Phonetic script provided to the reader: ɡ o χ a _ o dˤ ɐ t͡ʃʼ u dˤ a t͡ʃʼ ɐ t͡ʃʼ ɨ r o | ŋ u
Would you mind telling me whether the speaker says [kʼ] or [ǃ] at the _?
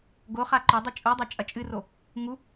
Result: ǃ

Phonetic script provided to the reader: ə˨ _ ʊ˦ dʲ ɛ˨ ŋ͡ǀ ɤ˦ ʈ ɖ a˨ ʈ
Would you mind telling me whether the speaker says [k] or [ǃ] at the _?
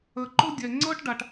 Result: ǃ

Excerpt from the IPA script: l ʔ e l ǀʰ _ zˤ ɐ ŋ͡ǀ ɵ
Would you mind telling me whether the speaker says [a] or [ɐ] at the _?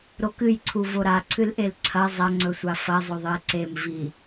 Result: ɐ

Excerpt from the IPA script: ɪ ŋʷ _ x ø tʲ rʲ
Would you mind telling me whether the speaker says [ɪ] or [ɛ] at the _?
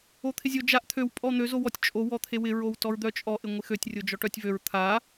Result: ɪ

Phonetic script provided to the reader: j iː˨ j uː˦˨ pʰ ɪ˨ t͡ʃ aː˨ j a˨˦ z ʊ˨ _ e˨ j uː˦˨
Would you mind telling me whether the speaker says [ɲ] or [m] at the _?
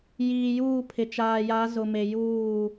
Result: m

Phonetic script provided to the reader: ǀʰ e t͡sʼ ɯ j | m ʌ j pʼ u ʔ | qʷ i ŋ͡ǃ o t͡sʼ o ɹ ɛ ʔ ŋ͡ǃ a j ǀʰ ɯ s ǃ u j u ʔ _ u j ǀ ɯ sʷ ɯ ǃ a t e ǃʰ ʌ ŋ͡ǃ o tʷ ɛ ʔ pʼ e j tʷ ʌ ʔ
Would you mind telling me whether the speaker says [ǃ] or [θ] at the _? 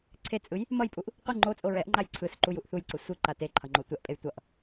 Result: θ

